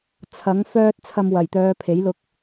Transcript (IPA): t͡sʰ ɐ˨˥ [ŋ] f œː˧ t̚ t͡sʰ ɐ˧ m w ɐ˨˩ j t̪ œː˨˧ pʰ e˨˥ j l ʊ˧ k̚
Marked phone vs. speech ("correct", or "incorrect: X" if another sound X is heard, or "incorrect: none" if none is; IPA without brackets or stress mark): correct